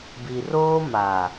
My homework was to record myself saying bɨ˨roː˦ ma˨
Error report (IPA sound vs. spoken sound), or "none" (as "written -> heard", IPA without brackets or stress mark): ɨ˨ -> i˨